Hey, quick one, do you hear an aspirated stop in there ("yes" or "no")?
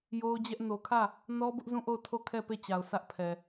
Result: yes